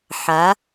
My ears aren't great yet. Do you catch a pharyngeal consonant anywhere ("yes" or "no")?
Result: yes